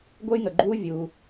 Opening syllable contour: high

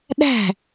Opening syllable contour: falling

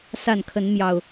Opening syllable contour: falling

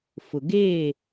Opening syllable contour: low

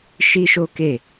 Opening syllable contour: high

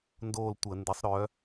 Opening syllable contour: falling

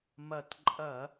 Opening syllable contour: low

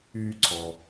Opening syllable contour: high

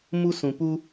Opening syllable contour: high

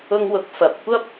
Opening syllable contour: high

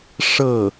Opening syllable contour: falling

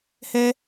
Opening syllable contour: high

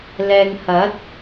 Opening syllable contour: low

